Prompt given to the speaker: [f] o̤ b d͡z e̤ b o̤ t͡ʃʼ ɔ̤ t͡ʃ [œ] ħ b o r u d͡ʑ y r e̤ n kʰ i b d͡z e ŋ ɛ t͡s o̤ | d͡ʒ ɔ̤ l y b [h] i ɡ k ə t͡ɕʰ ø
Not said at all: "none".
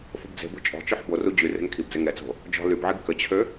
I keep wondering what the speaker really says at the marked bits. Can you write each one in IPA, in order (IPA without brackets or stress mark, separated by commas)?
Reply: f, œ, ʕ